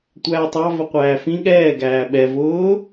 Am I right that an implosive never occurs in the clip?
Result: no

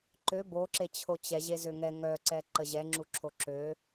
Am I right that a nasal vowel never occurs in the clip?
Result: yes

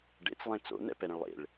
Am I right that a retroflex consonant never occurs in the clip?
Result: no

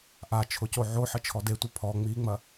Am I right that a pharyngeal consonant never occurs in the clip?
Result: no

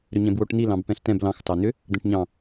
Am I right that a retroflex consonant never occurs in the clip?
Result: no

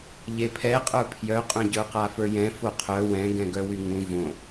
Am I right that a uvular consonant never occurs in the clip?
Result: no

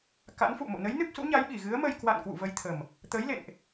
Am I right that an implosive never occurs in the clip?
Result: no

